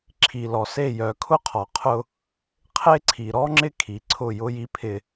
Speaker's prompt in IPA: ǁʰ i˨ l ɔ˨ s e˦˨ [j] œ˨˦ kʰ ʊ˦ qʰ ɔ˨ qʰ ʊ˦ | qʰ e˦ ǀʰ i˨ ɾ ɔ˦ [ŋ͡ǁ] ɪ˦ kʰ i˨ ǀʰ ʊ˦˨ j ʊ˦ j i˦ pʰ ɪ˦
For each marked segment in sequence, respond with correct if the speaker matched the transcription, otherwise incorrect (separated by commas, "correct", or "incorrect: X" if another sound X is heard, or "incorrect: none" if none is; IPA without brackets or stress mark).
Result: correct, correct